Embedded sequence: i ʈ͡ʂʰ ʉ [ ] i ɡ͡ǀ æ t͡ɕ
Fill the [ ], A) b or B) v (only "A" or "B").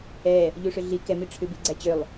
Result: A